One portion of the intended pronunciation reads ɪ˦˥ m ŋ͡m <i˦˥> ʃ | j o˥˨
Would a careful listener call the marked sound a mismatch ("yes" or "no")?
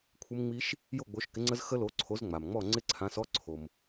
no